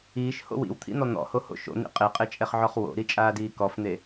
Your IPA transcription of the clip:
iː ʃ h o̰ w ḭ w t̪ʰ ḭ n̪ ɔ n̪ ɔ̰ h o h o̰ ʃ o̰ n̪ ḭ qʼ e qʼ e t͡ʃʼ ɛ χ ʕ ɔ χ w o̰ ɾ i t͡ʃʼ aː d iː k ɔ f n̪ e

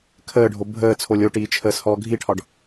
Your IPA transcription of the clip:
kʰ əː ɖʱ o bʱ əː t͡sʰ o lʲ o ʈ iː t͡ʃʰ əː s h ɔː ɡʱ i ʈʰ ɒ ɖ

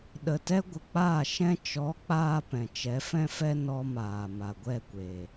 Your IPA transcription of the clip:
ɗ ə˨ t ɛ˦ ɡʷ ə˨ k͡p aː˦˨ ʃ ɛ̃˦ t͡ʃ ɔ˨˦ k͡p aː˧ p ɛ̃˨ t͡ʃ ɛ˨˦ f ɛ̃˦ f ɛ˦ n ɔ˧ m aː˨ m a˨ ɡʷ ɛ˦˨ kʷ e˨

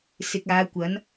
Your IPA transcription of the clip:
s ɪ˨ k̚ aː˨˧ kʷ ɐ˨˧ n

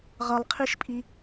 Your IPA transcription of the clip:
ʁ ʌ lˠ qʰ i ʃ pʼ i

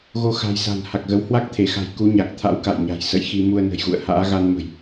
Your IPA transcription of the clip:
ɣ o˧ x a̤˨˩ j s a̤˨˩ n h a˨˩ k̚ ɣ ə˨˦ w h w a˦˥ k̚ t̪ʰ e˧˩ x a̤˨˩ j k u˨˦ ɲ a˨˩ k̚ t̪ʰ a̰˧˥ w k a̰˧˨ j ɲ a̤˨˩ j s ə̰˧˨ j x i˧ m u˧ ə̯ n ə̤˨˩ j ɣ ṵ˧˨ ə̯ h a̰ː˧˥ ɣ a˧ n m ə̤˨˩ j

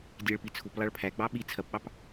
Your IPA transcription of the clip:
dʲ æ ɭ p i t͡sʰ u p lˠ ɑ ɭ pʰ æ ɡ͡b ɑ ɓ i t͡sʰ ɐ p ɓ ɑ p

